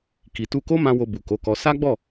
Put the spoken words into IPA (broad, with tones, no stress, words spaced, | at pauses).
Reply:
ki˨tu˧ko˦mã˧ wo˧bu˨ko˨˦kɔ˧ sa˦ɡ͡bɔ˦˨